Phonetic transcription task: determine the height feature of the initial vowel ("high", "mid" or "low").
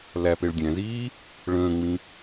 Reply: low